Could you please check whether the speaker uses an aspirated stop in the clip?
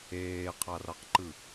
yes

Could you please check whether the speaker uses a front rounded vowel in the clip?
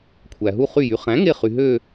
yes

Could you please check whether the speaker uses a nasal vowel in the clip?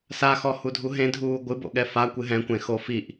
yes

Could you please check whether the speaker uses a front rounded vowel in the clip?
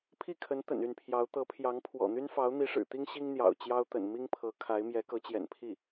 yes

